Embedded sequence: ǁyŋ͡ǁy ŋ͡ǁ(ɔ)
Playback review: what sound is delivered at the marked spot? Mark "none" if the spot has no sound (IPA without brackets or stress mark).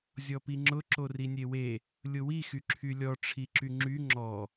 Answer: ɔ